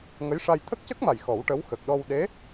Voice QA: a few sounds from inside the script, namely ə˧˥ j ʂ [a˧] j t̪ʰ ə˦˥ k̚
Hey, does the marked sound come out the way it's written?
yes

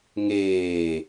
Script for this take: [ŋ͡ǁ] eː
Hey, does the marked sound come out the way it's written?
no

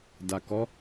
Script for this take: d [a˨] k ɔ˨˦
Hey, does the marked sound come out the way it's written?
yes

